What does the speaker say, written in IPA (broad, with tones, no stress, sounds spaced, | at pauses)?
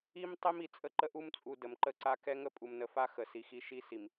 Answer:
i˦ m tˤ e˦ m i˨ t͡sʼ ə˦ ǃ ə˦ ʔ u˦ m t͡sʼ u˨ d ə˨ m ǃ ə˦ ǀ a˦ k ɛ˦ ŋ ə˦ pʼ u˨ m n ə˨˦ f a˦ x ə˨ s i˨ x i˦ ʃ i˦ s i˨ m